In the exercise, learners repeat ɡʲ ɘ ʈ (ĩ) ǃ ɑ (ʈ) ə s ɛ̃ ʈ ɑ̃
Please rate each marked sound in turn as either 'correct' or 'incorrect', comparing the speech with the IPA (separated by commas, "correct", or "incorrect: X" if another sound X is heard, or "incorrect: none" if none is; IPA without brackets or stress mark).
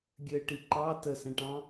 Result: incorrect: i, incorrect: t